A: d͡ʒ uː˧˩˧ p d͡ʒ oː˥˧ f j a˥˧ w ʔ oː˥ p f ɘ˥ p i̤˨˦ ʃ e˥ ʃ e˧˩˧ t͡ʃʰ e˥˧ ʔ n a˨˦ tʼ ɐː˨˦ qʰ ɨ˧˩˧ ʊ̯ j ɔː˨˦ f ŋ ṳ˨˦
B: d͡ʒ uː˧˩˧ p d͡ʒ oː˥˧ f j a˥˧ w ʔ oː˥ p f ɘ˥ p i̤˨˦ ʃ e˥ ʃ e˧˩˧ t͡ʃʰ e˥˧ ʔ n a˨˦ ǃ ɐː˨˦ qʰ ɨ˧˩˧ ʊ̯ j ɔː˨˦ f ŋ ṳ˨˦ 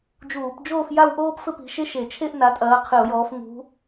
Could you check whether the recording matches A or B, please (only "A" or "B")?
A